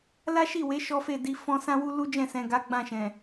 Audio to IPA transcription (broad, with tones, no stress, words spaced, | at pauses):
la˦ʃi˦˨we˨˦ ʃɔ˦fe˦˨di˧ fɔ̃˦ sã˦wu˦ lu˦d͡ʒɛ̃˦˨sɛ̃˨ɡa˨˦ ɡ͡bã˦˨ʃɛ̃˨